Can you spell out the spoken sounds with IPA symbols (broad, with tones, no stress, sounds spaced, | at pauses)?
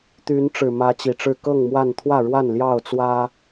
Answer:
t̪ y˨˦ n ʈ͡ʂ ɻ̩˨˩ m ä˨˦ t͡ɕ i˨˩ ʈ͡ʂ ɻ̩˥˨ k ɤ˥˨ ŋ m w a˥˨ n t̪ʰ w ä˥˨ ɻ w a˥˨ n l j ɑ˥˨ ʊ̯ t͡s w ä˦